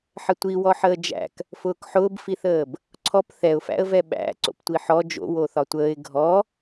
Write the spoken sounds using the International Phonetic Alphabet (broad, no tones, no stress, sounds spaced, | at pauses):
ħ ə tʷ i w ɔ ħ əː d͡ʒ æ̰ k | f ʊː k ħ ʊː b f i θ əː b | ǀʰ ɔ p θ ɛ ʊ̯ f æ̰ ə̯ v ɛ ɓ æ̰ ǀ o̰ p tʷ i ħ ɔ d͡ʒ o̰ w o θ ɒ tʷ əː ɪ̯ ɡʱ ɔ